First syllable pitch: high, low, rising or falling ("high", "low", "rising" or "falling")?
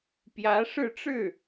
rising